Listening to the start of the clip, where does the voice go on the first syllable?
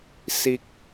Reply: low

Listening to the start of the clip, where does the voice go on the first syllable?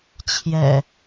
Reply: low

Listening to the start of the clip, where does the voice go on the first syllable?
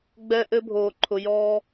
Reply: high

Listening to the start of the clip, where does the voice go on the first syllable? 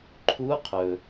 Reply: rising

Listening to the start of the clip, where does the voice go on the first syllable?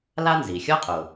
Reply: high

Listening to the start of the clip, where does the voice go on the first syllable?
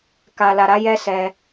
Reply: low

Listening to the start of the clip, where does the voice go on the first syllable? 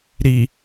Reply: low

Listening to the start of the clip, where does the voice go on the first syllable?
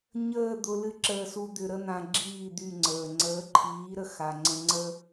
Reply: falling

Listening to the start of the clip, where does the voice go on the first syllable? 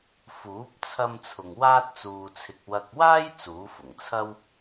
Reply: rising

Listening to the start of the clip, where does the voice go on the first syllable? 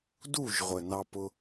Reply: falling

